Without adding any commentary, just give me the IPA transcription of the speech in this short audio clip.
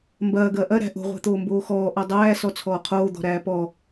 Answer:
m b ɐː ɡ ɐː ʔ ɐ ɾ æ̤ ʔ o̤ ʁʷ æ̤ t̪ oː m b oː x ɔː ʔ ɔ dˤ æː s ɔ t͡sʰ ɔː qʰ oː d̪ ɔ̤ ɾ æː p ɔ

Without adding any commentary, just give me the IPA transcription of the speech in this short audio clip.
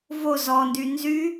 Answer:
v o z ɔ n d y n z y

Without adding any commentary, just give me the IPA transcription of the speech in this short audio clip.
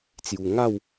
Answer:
t͡s j u˧ ŋ a˥˧ w

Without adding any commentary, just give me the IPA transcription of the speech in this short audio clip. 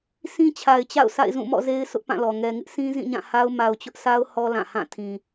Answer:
sʰ ĩ˦ t͡ɕʰ a˨ ɪ̯ t͡ɕ a̰˦˨ ʊ̯ sʰ a̰˦˨ ɪ̯ z ũ˦˨ m ɔ̰˦˨ z e˦ ɪ̯ sʰ ʊ˦ ʔ p ã˦˨ l ɔ˨ ŋ ɛ˨ ŋ ɪ˦ ʔ sʰ ĩ˦ z ĩ˦˨ ɲ ã˦˨ h a˦ ʊ̯ m a˨ ʊ̯ t͡ɕ ʊ˦ ʔ sʰ a˦ ʊ̯ h ɔ˦ l ã˦˨ h ã˦˨ tʰ ĩ˨

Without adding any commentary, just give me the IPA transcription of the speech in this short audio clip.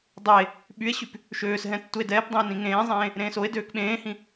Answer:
dˤ e | ɓ y e̯ ɕ y p | ʃ øː s ɦ ɛ̃ tː u e̯ d ɛː p dˤ ẽ o̯ n ĩ ŋ ẽː zˤ ẽː | ɾ ẽː s o e̯ d øː k ɓ ẽː h ĩ

